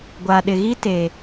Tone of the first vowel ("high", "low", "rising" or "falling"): low